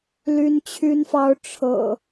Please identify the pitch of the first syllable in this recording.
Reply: high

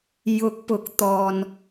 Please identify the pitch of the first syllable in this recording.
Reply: rising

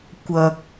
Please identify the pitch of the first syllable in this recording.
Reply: low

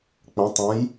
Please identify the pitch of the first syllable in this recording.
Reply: rising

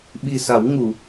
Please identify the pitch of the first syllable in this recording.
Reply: low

